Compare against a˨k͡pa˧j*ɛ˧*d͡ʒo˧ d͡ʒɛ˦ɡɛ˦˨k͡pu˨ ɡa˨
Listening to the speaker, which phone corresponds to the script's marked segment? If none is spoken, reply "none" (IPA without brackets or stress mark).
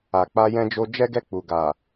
ɛ̃˧